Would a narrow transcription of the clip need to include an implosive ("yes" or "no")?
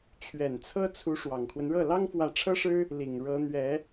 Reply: no